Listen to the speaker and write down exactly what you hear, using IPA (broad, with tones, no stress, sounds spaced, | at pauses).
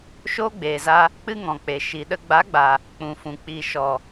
ʃ oː˦ ɡ͡b eː˨ z a˧ | k͡p ɨ˦ ŋ ɔ̃˨ k͡p e˨ ʃ i˨ ɗ ə˧ ɡ͡b a˨˦ ɡ͡b a˨ | k͡p ũ˨ f ũ˨ k͡p i˨ ʃ ɔ˨